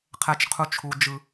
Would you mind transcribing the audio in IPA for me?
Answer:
qʰ ɛ˧ t͡ʃ qʰ u˧ t͡ʃʰ u˨ d͡ʒ ɯ˨

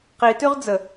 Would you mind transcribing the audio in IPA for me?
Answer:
q i t ʉ ʁ d͡z ə

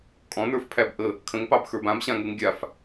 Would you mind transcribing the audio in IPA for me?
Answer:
kʼ ɔ̃ n ə˞ f pʰ æ b ʔ ə | kʰ ə̃ ŋ p ɑ b x ə˞ b ã b ɕ ã ŋ u ŋ ɡʲ a f

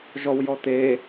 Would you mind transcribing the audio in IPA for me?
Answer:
ʒ ɔ w j ɔ t̪ e

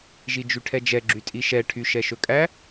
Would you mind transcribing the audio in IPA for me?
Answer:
ʒ i d͡ʒ y ʈʰ ɛ d͡ʒ ɛ ɡ͡ǁ y tʼ i ʃ ɛ ʈʰ y ʃ ɛ ʃ ɵ kʼ æ

